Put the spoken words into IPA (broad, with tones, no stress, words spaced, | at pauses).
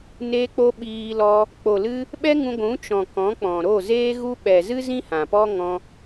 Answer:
neː˧k͡po˧ ɓiː˧lɔ˧ | k͡po˨lɨ˧ | ɓɛ˦ŋũ˧ɡʷũ˨˦ t͡ʃɔ̃˨kɔ̃˨˦k͡pɔ̃˨ ɾo˦˨zeː˦ɣu˦ ɓɛ˨zɨ˦zĩ˦ hã˨pɔ˦ ŋɔ̃˧